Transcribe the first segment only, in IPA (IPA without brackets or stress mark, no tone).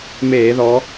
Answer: m